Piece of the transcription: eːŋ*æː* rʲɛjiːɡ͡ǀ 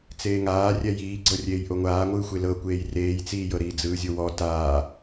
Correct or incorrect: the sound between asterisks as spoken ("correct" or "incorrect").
incorrect